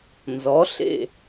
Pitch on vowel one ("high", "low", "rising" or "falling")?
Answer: rising